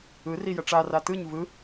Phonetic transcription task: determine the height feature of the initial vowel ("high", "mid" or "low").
high